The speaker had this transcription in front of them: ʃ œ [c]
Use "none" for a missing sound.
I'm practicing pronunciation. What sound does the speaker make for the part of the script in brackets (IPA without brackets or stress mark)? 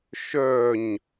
ɲ